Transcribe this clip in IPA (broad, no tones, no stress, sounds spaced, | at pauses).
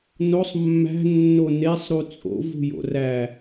n o sˤ mː æ̤ nː o n e sˤ ɾ u t͡sʼ o̰ v ṳ j o̰ r æ